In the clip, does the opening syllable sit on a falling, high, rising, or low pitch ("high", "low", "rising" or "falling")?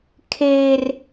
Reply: high